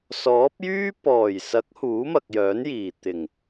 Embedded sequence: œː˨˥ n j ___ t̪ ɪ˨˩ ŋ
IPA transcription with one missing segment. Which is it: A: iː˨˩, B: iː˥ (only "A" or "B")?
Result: A